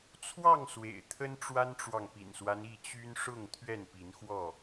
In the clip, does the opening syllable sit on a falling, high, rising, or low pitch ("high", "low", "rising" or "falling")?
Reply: falling